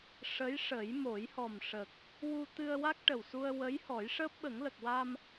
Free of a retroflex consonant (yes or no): no